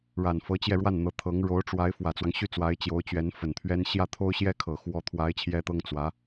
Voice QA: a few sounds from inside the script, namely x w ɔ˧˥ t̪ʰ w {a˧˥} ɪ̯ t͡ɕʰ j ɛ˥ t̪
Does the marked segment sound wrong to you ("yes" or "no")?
no